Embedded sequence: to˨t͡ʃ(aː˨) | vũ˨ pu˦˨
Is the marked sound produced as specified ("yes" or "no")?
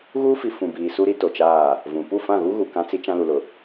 no